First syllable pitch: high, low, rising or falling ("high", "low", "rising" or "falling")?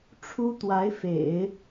high